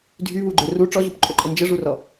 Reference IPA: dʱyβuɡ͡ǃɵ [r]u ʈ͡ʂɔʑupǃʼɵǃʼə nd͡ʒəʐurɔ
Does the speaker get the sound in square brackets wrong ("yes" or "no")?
no